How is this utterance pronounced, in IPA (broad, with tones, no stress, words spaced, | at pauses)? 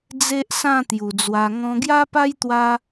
d͡ze˦ʔsã˥˧ t̪ju˨˩d͡zwa˧ŋɔ̃˦ ɡja˦pa˦jt̪wa˧